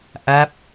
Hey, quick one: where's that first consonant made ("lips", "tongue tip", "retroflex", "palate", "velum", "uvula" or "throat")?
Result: throat